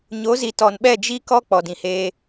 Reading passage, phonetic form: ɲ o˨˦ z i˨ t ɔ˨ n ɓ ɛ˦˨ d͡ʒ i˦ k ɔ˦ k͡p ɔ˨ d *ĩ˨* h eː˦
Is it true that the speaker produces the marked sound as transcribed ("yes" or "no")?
yes